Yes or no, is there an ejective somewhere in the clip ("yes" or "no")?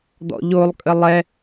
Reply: yes